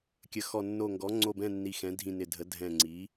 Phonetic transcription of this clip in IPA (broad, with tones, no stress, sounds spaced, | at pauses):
kʲ ə˩˧ x ɔ˨˩ nː o˨˩ ŋ ɡ ɔ˩˧ ŋ͡ǀ o˨˩ b ɛ̃˨˩ nː i˨˩ x ɛ̃˩˧ dʱ ĩ˨˩ n ɪ˨˩ dʱ ə˩˧ dʱ ɛ̃˨˩ ŋ͡ǀ i˩˧